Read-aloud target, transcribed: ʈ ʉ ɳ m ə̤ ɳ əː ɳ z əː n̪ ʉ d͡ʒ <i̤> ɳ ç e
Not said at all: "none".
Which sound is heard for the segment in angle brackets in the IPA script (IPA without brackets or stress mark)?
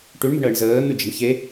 e̤